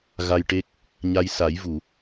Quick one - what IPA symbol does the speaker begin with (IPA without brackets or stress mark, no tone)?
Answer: ɣ